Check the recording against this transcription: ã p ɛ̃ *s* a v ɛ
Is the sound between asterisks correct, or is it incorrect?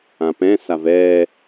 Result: correct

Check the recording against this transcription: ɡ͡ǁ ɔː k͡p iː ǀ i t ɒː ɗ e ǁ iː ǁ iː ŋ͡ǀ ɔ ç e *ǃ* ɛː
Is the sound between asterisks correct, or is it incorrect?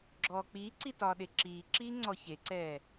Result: incorrect: ǀ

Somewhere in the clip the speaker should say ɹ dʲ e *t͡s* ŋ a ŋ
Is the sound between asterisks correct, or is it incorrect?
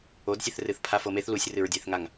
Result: incorrect: θ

